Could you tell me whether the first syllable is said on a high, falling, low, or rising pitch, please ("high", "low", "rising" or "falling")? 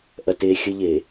low